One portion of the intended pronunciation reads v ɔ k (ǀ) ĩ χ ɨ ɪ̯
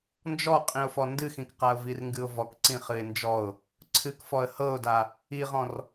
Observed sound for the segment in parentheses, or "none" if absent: ǀ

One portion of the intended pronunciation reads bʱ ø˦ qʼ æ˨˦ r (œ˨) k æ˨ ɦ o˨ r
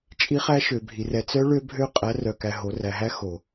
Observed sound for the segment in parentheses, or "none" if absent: œ˨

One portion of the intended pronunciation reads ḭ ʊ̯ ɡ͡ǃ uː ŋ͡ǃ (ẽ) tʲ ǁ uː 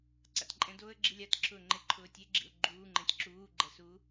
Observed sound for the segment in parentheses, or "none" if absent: ẽ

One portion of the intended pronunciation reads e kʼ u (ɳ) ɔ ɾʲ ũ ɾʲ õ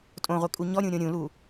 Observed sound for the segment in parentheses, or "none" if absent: ɲ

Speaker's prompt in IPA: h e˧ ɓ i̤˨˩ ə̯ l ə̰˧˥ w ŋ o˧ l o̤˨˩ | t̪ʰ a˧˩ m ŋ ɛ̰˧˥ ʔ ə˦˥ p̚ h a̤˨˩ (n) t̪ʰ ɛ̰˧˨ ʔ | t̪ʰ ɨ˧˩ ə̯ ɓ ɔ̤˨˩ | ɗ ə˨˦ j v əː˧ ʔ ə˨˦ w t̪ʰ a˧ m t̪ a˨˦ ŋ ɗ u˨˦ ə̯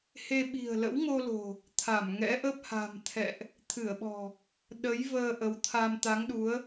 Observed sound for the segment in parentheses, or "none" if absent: m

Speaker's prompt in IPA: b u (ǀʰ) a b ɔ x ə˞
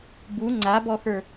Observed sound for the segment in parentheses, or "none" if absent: ŋ͡ǀ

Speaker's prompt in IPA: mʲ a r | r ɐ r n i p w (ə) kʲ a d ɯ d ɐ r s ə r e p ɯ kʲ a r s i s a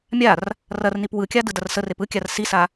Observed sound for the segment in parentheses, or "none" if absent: ɯ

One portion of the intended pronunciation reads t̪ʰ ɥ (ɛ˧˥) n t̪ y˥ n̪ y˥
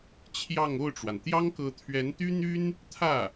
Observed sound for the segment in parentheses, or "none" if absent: ɛ˧˥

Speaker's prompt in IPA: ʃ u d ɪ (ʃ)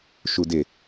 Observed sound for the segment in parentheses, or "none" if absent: none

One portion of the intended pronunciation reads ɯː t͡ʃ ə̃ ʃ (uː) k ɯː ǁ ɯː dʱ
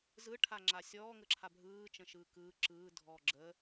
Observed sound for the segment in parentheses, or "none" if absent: ɯː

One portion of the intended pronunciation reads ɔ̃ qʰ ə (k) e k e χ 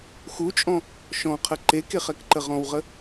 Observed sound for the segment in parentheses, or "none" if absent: ǃ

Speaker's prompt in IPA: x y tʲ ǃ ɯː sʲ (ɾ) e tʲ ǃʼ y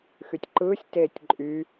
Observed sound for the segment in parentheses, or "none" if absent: t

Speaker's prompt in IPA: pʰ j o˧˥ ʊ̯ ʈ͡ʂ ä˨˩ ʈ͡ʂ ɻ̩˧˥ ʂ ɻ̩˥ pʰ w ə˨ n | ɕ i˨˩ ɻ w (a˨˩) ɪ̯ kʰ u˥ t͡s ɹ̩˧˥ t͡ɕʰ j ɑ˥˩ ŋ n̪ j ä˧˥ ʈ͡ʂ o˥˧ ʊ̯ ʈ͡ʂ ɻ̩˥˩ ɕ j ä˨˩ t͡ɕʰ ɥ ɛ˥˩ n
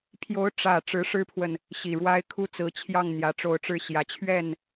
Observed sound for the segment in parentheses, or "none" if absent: a˥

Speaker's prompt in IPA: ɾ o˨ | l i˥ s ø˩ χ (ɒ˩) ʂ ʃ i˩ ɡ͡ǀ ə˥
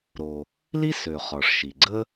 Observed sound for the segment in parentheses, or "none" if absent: ɒ˩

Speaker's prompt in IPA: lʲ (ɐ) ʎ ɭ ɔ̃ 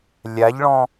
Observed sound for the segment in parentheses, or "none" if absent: a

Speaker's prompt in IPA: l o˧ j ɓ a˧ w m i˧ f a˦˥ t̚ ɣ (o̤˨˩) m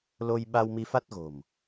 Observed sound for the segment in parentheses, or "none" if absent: o̤˨˩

